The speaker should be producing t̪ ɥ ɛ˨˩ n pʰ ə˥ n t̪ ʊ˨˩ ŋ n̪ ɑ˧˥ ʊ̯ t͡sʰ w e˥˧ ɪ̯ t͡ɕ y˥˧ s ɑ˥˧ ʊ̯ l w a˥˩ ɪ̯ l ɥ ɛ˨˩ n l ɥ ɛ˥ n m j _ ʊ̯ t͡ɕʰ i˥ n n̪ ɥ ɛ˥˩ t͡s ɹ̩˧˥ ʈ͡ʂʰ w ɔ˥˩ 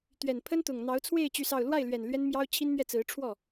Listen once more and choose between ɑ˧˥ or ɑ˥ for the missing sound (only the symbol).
ɑ˥